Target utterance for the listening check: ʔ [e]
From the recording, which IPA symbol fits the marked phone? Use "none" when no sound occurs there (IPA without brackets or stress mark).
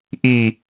i